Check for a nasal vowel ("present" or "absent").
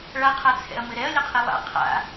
absent